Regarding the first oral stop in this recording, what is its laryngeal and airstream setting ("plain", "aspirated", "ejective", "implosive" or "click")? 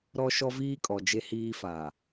ejective